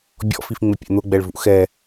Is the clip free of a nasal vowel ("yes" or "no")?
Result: yes